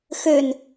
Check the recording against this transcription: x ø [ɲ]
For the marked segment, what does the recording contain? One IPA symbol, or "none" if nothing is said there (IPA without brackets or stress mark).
n